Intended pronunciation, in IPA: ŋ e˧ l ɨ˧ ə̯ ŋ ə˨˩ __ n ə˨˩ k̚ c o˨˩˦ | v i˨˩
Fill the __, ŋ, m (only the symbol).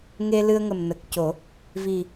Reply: m